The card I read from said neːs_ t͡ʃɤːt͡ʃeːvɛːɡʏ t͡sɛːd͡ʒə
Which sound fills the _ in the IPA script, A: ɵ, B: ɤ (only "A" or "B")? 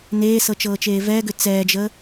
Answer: B